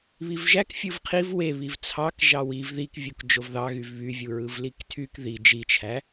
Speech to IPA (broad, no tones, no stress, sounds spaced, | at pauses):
β i v ʒ æ k fʲ ɯ v qʰ i v w e β i v t͡sʰ ɑ k ʒ ɑ w i v ð i k vʲ u k d͡ʒ o v ð ɑ ɣ y v β y vʲ u ɹ ɯ v l i k tʰ y k ð i d͡ʒ i t͡ʃʰ æ